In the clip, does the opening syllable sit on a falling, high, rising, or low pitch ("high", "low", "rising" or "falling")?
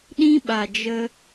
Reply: high